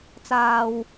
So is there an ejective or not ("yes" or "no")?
no